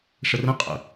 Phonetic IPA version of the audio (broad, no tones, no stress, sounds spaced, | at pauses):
ʂ ə r ə̃ qʼ ə̰